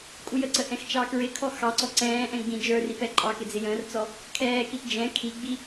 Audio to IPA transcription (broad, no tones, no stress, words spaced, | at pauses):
kʼujəǀə ʔɛ̃xt͡ʃɑkɹɪkʰɔ xɑǀɔ ǀɛ̃ːʔɛ̃ ɡ͡bĩd͡ʒə˞rip ɛǃʼɑkɪ d͡zɪjə̃ːrt͡sɔ | kʰɛːkit d͡ʒɛ̃ kʰiɡ͡bi